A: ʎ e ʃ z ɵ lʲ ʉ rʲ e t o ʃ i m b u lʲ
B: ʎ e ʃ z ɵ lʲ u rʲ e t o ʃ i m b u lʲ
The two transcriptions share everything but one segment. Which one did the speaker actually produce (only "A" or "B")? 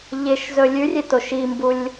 A